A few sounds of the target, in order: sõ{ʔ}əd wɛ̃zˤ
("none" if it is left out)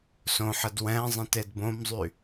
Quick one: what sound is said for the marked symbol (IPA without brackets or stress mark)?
ħ